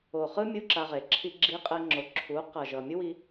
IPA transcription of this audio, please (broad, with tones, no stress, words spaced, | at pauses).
o˨χɯ˦ mʲu˦ǁa˧ʁe˨ ǁʰi˧ɡ͡ǁi˧qʼɛ˧ŋ͡ǁo˨ ǁʰu˨˦qʌ˨ ʒʌ˨ mʲu˦wi˧